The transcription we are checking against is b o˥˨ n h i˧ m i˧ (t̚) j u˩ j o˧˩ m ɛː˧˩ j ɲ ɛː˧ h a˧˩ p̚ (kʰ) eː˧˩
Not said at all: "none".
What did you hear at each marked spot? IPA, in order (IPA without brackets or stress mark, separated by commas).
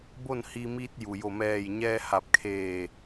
t̚, kʰ